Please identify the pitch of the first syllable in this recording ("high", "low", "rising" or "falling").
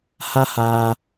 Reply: high